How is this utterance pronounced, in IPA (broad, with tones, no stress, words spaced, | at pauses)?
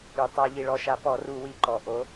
y˩tˤa˧˩˧ ʎi˩ɭɔ˧˩˧ʃa˩˧ pɔ˧˩˧ru˧˩˧ wi˩˧ǃɔ˩ ʔo˨˥